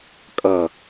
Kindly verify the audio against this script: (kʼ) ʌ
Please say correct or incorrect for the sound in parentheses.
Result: correct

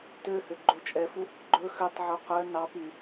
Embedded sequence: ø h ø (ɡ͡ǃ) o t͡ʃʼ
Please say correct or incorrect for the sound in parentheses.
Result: correct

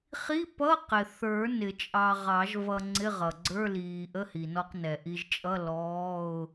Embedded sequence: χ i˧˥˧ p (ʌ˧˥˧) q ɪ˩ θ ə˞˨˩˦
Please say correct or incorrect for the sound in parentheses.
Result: correct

